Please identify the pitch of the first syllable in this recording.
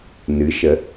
rising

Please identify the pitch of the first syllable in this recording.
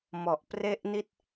low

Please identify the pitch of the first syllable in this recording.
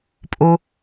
low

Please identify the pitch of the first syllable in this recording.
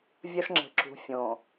high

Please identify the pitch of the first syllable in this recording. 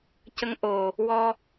rising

